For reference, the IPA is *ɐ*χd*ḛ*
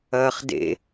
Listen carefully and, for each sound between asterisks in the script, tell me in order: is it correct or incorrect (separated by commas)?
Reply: incorrect, correct